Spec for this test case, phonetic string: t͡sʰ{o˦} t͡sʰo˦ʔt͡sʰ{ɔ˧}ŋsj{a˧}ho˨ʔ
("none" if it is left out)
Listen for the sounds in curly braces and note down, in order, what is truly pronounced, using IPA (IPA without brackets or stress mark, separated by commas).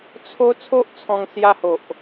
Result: o˦, ɔ̃˧, a˧